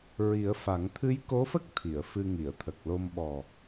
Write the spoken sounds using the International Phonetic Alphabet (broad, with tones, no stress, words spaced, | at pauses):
ɹi˨˩˦ə̯ fa˨˩˦ŋ t̪ʰɨ˧˥jko˧˥fə˦˥k̚ t̪ʰi˨˩˨ə̯fɨ˧ŋi˨˩˨ə̯ t̪ʰə˨˩k̚lo˧mɓɔ˨˩